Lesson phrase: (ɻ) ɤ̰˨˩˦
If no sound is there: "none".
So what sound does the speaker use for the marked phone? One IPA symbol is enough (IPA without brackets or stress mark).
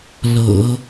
l